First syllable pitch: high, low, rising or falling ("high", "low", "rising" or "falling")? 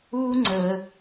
high